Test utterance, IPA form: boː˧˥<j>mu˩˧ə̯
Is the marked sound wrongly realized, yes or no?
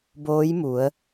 no